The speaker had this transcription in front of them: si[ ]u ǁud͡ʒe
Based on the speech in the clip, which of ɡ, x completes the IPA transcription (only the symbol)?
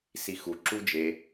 x